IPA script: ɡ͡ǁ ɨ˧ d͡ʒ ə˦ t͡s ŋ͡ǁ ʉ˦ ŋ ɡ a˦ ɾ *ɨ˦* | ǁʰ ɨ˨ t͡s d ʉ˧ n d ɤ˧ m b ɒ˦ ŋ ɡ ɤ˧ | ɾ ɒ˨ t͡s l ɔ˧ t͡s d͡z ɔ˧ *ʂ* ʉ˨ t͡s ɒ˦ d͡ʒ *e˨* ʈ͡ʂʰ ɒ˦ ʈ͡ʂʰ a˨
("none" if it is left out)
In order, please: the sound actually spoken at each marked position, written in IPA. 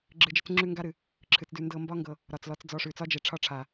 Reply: ɨ˨, ʂ, e˨

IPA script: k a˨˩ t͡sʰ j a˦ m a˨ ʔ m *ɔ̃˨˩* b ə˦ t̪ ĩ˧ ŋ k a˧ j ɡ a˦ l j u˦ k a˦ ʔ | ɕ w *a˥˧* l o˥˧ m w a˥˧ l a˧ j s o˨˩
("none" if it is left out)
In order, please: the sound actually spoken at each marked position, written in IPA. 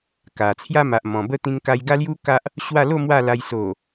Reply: ɔ̃˨˩, a˥˧

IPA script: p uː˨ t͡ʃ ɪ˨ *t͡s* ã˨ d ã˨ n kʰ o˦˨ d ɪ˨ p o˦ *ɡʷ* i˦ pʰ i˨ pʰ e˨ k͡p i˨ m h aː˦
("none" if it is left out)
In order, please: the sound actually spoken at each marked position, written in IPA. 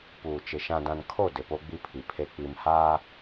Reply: ʃ, ɡ͡b

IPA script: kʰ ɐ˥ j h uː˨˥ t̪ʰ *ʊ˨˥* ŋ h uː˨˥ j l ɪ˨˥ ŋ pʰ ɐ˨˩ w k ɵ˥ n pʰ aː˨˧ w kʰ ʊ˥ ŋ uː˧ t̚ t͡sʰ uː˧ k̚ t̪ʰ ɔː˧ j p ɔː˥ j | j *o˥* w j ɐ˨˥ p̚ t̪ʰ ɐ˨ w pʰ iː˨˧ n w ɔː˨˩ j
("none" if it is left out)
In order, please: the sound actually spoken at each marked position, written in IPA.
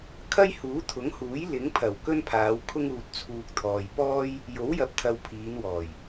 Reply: ʊ˨˥, o˨˥

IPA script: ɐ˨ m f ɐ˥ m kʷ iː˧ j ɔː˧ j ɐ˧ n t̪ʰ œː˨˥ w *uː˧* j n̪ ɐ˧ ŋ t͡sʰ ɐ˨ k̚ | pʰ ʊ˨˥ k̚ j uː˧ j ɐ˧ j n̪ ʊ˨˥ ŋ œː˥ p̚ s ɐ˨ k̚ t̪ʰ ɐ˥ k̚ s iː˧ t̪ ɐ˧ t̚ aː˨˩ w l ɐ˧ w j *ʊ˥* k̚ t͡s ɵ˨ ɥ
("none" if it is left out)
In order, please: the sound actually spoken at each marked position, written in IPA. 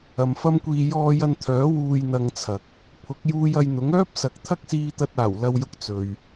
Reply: uː˧, ʊ˧

